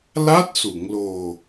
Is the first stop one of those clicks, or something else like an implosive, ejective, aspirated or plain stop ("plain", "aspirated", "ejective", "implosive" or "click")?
plain